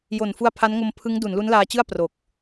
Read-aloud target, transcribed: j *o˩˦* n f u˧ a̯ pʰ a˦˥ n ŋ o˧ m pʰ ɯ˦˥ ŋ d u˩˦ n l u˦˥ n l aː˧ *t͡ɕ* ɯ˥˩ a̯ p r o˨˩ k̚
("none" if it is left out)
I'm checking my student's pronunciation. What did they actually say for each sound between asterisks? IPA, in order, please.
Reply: o˨˩, t͡ɕ

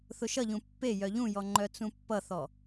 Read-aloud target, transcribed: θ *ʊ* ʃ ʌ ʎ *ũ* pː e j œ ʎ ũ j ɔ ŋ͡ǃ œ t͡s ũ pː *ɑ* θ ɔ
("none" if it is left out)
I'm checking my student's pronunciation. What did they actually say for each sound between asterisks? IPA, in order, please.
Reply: ʊ, ũ, ʌ

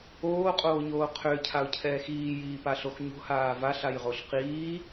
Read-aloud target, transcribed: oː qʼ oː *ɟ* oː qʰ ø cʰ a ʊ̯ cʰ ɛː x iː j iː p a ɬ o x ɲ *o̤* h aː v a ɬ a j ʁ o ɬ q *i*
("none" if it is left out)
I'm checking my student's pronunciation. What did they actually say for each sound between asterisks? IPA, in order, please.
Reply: ɲ, o̤, iː

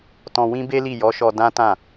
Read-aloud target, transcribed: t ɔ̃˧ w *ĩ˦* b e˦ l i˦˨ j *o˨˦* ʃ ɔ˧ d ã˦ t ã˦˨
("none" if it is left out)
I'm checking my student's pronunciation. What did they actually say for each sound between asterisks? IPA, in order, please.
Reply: ĩ˦, ɔ˨˦

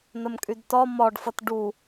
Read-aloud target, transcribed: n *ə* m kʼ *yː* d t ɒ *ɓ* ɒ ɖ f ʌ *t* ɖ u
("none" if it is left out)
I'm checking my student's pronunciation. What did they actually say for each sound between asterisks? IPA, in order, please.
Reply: ə, y, m, t

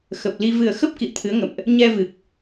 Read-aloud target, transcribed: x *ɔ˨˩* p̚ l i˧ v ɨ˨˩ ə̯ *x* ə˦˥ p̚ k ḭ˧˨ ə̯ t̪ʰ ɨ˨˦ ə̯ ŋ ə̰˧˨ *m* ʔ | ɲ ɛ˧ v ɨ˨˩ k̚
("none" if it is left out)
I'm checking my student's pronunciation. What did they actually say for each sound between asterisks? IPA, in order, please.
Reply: ə˨˩, x, m

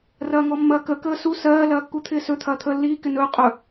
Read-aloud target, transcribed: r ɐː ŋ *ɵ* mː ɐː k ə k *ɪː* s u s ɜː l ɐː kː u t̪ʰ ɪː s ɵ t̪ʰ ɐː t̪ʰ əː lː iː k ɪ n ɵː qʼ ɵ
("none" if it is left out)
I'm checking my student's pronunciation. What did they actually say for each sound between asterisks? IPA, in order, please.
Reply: ɔ, əː

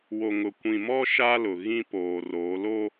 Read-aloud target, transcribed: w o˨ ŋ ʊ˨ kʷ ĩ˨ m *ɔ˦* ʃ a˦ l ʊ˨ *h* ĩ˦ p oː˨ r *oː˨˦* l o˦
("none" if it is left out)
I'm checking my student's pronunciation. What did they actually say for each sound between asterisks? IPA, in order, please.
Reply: ɔ˦, ɣ, oː˨˦

